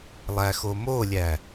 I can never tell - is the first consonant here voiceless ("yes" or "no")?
no